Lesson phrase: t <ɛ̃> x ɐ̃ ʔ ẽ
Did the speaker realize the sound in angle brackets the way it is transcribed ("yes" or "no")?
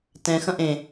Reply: yes